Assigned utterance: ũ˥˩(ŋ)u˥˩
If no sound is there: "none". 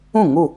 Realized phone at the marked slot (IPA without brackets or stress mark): ŋ